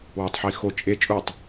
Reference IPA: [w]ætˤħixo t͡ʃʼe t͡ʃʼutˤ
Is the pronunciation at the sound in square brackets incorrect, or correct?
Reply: correct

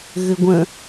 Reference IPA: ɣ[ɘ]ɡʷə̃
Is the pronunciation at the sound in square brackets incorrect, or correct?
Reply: correct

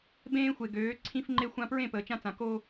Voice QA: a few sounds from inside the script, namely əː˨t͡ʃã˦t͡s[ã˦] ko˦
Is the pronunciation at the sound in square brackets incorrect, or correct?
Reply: incorrect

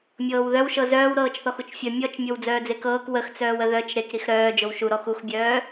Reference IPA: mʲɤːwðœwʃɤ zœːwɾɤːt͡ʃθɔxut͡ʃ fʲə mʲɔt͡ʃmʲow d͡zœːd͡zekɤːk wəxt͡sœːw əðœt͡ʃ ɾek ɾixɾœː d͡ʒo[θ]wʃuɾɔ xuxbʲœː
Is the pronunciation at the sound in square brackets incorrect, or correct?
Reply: incorrect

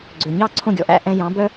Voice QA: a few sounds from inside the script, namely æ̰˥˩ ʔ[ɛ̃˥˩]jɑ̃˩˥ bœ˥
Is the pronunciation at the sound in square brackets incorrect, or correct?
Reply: incorrect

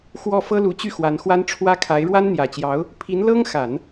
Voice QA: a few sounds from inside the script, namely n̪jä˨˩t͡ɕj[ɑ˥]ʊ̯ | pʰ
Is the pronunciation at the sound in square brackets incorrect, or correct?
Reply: incorrect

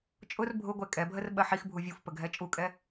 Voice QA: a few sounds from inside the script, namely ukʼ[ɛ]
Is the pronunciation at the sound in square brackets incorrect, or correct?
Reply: correct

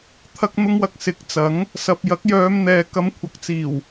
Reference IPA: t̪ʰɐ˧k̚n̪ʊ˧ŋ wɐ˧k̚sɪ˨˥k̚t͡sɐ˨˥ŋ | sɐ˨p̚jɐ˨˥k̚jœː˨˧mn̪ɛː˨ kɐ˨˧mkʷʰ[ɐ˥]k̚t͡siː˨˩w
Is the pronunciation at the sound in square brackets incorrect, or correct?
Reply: incorrect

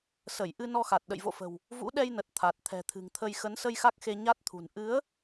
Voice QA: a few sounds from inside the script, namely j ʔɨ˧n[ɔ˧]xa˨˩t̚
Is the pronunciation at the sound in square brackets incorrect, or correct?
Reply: correct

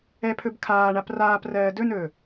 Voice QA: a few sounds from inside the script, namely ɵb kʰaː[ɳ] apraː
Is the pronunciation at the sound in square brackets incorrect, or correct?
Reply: correct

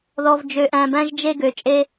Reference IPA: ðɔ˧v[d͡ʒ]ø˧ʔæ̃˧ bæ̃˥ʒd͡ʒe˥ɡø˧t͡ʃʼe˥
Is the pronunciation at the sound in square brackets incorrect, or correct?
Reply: correct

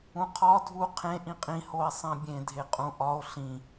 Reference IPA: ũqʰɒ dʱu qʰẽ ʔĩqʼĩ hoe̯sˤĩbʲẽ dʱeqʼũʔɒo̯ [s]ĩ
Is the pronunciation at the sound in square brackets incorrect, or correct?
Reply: incorrect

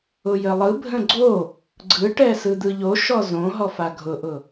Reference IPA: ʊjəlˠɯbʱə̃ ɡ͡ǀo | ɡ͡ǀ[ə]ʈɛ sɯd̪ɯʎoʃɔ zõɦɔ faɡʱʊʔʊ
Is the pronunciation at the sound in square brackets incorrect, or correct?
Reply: incorrect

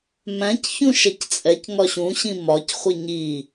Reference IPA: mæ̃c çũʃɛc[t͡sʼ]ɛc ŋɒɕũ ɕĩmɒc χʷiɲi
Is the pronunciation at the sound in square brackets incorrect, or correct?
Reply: correct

